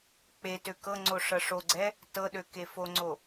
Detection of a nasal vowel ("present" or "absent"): absent